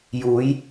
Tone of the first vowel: rising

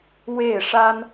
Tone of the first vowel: falling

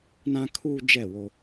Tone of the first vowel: high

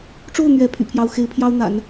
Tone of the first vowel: falling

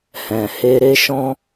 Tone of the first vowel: low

